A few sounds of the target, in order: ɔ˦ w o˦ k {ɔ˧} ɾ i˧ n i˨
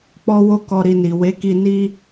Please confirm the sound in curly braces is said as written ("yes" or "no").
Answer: yes